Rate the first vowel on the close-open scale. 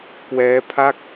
mid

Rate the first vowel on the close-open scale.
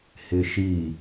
close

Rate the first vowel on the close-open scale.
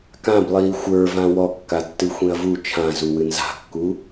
open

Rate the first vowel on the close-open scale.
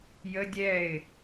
mid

